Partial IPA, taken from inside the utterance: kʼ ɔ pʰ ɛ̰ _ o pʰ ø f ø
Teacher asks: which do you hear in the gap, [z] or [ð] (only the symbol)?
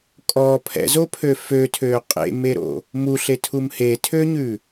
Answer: z